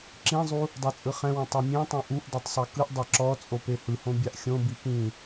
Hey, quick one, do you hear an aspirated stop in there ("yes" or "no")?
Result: no